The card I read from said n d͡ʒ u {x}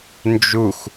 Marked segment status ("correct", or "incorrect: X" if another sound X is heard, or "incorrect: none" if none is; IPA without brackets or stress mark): correct